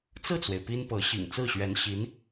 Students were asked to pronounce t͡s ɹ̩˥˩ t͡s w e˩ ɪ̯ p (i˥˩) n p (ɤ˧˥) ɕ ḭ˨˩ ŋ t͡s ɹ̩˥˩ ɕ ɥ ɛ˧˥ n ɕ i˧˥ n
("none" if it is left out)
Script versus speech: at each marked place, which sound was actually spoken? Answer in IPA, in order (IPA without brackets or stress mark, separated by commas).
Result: i˥, ɤ˧˥